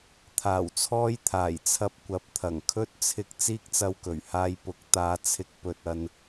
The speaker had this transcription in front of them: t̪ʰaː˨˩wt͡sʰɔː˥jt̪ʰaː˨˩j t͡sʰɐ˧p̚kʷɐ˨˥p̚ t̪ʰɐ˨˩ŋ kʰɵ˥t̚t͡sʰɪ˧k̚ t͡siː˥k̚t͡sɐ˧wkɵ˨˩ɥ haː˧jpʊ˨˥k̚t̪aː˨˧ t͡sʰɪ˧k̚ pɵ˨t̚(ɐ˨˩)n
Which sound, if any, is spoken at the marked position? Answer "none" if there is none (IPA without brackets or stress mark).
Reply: ɐ˧